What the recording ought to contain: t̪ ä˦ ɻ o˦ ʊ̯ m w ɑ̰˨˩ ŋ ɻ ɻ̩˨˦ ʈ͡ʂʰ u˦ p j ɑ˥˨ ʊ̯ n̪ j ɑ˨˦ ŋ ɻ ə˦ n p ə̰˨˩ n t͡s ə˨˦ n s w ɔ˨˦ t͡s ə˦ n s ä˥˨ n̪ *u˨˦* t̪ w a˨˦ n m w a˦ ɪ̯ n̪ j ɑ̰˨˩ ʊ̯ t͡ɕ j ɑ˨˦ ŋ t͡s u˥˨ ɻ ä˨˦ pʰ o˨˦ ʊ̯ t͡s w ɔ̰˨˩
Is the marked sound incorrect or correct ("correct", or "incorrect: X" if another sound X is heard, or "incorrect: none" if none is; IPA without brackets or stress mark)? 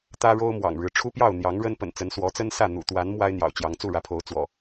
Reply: incorrect: ṵ˨˩